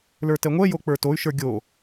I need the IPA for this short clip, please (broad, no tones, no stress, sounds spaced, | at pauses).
l ə˞ t ɛ ŋʷ ɛ j o k͡p ə˞ t o y̯ ʃ ə˞ ɡʲ o